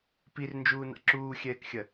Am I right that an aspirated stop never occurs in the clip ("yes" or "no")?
yes